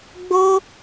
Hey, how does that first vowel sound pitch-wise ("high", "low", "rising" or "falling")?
high